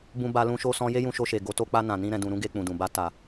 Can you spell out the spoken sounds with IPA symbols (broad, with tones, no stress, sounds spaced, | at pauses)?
b ũ˧ b a˧ l ũ˧ ʃ o˧ s ɔ̃˧ j e˦ j ũ˧ ʃ o˧ ʃ e˨ ɡ o˨˦ t o˧ k͡p a˧ n ã˨ n ĩ˧ ɾ ɛ̃˨ d ũ˨ ɾ ũ˧ ɡ e˧ k͡p ũ˨ d ũ˨ b a˧ t a˨